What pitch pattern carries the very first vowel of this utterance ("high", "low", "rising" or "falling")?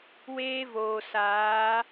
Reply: high